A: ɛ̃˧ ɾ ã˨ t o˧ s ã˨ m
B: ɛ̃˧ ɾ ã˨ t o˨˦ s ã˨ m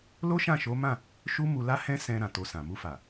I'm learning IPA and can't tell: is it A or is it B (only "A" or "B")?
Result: A